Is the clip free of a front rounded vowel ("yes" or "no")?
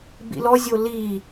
yes